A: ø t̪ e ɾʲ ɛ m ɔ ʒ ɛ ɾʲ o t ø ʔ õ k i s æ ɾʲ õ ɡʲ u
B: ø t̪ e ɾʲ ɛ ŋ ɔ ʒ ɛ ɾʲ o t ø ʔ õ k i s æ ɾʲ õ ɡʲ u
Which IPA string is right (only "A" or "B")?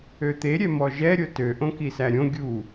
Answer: A